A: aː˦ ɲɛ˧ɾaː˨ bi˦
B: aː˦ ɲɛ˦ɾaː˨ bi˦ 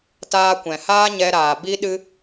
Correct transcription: A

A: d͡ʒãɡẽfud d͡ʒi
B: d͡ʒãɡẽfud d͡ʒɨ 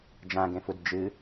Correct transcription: B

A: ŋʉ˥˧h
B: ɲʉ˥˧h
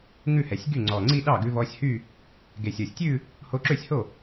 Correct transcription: A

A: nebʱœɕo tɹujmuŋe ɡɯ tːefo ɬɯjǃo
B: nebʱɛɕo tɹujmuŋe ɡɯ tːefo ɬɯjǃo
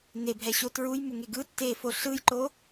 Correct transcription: B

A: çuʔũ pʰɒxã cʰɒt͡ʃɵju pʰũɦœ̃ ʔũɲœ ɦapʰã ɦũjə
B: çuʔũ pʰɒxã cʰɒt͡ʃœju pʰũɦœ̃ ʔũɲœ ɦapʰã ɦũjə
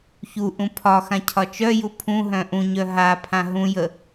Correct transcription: B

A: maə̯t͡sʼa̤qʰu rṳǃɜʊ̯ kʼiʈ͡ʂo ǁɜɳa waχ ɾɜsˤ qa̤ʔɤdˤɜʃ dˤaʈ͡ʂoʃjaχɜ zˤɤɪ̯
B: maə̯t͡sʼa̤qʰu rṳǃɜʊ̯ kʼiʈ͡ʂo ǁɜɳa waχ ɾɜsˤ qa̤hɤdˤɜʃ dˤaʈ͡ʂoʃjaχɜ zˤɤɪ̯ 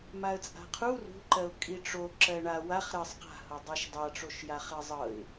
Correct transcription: B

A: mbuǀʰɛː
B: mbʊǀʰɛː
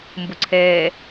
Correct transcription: B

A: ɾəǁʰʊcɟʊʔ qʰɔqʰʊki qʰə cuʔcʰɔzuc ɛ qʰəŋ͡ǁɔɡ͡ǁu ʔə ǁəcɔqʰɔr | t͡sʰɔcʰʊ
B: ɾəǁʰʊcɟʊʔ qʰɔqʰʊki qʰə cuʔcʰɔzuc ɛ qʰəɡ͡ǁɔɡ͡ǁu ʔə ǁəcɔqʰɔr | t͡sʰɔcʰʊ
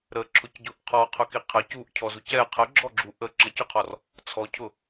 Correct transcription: B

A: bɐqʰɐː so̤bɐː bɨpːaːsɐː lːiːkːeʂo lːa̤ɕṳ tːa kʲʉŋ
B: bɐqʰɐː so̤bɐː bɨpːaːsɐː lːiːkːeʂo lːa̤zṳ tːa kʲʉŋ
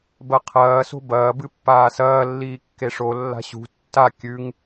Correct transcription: A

